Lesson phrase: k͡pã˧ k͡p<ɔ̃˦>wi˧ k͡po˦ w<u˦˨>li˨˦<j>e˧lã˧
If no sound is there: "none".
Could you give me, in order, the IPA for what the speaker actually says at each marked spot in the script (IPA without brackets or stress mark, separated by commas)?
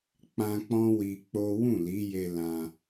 ɔ̃˦, ũ˦˨, j